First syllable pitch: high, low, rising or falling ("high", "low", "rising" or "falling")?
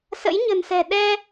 rising